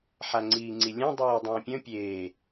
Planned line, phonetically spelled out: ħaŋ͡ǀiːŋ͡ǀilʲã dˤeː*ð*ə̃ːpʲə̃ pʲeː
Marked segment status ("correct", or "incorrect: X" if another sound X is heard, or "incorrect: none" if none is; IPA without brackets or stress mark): incorrect: dˤ